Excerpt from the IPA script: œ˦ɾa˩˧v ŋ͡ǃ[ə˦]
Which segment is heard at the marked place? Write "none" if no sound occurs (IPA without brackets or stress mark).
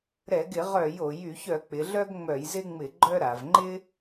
ɪ˦